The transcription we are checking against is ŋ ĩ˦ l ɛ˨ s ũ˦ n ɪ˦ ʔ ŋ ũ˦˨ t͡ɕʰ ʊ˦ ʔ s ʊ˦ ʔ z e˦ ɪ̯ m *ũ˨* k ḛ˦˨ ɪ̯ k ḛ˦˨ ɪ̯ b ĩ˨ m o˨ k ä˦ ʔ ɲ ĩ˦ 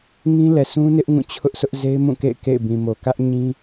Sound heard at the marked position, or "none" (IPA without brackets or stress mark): ũ˦˨